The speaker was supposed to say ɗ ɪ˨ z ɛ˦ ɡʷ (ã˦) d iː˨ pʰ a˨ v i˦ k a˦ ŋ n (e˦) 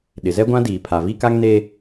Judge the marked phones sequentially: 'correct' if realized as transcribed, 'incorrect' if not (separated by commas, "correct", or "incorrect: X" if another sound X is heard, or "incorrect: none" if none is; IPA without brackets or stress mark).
correct, correct